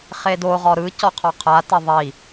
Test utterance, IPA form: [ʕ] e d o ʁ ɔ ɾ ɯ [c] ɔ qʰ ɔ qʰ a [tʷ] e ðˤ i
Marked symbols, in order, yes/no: no, yes, no

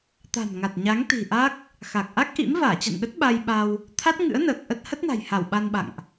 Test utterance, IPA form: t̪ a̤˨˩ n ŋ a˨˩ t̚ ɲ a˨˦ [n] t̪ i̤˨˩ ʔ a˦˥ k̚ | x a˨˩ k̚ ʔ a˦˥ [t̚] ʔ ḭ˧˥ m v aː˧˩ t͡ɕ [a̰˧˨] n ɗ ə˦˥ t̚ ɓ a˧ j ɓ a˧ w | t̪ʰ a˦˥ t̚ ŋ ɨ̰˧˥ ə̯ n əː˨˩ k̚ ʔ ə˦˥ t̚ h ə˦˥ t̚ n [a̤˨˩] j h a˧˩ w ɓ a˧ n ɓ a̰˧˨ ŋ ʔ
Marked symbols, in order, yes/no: no, no, yes, yes

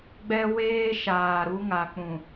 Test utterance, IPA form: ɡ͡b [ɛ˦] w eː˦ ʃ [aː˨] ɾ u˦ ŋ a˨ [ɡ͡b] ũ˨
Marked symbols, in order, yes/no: yes, yes, no

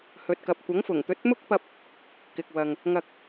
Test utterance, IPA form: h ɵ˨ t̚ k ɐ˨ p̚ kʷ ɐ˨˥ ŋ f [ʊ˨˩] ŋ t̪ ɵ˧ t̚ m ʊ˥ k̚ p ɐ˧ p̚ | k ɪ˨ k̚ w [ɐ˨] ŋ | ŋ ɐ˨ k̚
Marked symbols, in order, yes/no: yes, yes

